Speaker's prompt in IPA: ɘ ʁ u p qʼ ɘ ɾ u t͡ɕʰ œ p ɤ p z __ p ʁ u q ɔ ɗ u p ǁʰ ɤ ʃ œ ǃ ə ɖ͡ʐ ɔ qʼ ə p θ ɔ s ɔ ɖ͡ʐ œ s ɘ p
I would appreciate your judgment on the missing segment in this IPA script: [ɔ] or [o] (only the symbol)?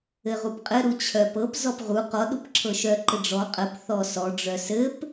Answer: ɔ